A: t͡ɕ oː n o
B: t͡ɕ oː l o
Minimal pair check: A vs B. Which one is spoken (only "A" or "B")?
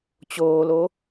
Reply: B